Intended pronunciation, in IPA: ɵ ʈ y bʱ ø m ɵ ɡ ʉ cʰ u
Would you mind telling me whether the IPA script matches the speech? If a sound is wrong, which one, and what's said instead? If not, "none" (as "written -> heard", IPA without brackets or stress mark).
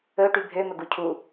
ʉ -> u